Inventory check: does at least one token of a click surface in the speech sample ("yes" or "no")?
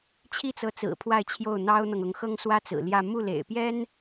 no